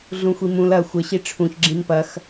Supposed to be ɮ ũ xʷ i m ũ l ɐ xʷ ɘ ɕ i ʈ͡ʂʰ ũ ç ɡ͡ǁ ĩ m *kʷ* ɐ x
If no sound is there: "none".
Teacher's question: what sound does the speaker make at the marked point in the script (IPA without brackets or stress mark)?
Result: p